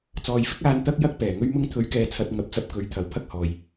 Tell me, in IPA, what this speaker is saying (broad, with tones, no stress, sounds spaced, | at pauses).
t͡s ɔː˨ j f ɪ˥ k̚ aː˧ n t̪ ɐ˥ k̚ j ɐ˥ k̚ p ɛː˨˩ ŋ ɵ˥ ɥ m ʊ˥ ŋ t̪ʰ ɵ˨˧ ɥ k ɛː˨ t͡sʰ ɐ˨ t̚ ŋ ɐ˨˥ p̚ t͡s ɐ˧ p̚ k ɵ˨ ɥ t̪ʰ ɐ˨˥ w pʰ ɐ˥ k̚ h ɔː˨ j